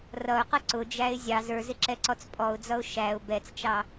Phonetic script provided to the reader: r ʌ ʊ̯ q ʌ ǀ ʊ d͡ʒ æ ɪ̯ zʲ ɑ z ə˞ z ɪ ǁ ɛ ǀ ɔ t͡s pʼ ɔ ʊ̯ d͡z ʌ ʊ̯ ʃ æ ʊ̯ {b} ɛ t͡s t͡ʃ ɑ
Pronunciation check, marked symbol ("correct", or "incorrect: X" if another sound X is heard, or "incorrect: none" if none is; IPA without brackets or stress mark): correct